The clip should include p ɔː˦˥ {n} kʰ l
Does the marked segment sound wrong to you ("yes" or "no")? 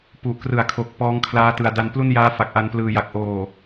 yes